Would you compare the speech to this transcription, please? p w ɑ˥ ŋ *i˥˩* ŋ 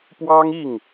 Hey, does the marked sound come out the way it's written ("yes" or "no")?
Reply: yes